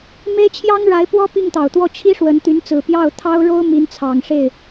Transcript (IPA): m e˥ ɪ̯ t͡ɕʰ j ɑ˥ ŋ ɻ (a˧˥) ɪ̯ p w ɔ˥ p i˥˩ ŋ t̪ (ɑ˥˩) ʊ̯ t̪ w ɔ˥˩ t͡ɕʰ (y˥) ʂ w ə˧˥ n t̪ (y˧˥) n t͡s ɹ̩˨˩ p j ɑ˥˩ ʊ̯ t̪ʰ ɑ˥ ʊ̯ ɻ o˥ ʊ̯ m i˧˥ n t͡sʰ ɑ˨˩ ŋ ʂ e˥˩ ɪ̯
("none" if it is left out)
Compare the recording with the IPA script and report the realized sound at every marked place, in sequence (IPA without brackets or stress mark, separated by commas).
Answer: a˧˥, ɑ˨˩, i˥, y˧˥